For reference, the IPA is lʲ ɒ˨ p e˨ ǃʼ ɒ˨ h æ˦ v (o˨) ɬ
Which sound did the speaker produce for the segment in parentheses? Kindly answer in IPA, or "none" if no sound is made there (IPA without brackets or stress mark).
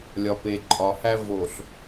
o˨